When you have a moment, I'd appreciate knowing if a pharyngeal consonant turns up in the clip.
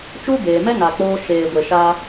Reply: no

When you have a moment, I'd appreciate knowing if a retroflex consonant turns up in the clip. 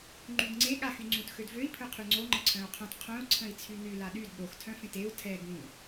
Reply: no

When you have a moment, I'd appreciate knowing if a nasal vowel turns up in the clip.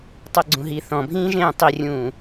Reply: yes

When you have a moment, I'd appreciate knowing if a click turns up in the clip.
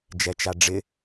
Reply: no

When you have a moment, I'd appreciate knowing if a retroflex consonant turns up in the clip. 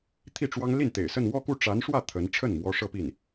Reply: yes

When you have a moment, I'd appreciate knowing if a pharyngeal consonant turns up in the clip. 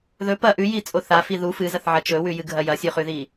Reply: yes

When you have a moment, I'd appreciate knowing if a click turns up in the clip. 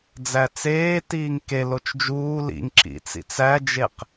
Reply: yes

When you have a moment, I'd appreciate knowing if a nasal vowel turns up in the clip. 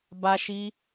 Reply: no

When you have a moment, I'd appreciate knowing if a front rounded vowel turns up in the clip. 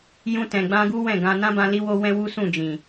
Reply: no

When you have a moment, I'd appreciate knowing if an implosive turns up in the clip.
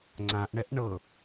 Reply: no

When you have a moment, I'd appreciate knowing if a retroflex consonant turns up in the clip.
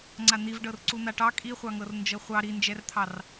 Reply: yes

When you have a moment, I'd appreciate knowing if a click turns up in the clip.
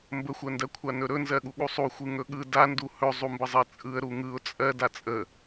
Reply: no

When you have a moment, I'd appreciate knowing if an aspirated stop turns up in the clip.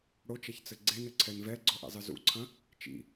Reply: yes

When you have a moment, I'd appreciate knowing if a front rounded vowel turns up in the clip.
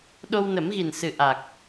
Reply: no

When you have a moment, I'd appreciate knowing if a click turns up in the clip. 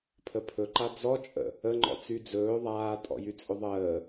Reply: yes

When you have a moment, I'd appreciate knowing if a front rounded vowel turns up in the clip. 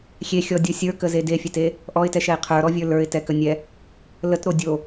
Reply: no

